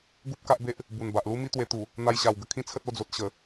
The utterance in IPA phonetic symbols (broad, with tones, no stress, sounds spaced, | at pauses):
ɡ u˦ p̚ k a˦ ʔ b e˦ ʔ | b u˨˩ n b a˨ ʔ l u˦ m i˦ t̪ w e˧ t̪ u˨˩ | n̪ a˧ j ɕ a˨˩ w ɡ ə˧ kʰ ĩ˦ t͡sʰ ə˦ t̚ o˧ d͡z o˨ t̚ ɕ ə˨˩